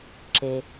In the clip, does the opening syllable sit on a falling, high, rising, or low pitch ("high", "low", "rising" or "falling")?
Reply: low